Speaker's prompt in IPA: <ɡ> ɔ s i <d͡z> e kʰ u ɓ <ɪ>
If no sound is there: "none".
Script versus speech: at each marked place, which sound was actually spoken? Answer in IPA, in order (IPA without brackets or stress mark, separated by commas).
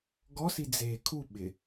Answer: ɡ, d͡z, ɪ